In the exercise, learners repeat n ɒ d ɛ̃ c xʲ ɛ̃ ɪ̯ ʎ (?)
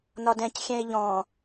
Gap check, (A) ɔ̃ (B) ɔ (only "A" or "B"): A